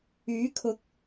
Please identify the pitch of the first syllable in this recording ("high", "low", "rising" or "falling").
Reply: rising